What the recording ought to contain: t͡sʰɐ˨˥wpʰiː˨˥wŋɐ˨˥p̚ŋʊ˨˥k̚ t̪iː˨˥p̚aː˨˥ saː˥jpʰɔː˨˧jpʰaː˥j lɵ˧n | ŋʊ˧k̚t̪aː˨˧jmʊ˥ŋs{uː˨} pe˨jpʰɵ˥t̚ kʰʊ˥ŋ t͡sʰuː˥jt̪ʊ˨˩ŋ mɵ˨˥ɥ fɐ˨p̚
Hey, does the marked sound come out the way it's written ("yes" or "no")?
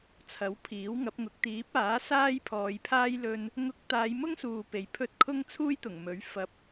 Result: yes